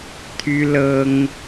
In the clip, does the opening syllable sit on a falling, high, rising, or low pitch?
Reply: high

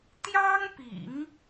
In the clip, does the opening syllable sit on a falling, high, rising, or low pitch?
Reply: high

